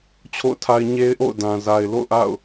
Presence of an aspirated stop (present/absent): present